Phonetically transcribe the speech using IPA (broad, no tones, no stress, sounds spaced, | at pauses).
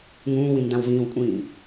ŋ ũː w ĩ n d ã w v ĩː w kʷʼ ĩː